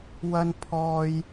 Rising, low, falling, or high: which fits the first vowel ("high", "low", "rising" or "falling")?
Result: high